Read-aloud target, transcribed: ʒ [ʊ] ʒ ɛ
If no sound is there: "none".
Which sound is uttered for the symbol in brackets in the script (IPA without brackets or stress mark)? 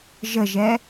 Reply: ə